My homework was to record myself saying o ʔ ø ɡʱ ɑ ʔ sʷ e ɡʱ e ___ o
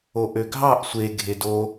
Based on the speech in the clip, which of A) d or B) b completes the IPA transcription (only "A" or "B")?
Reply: A